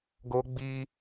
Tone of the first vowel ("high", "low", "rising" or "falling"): high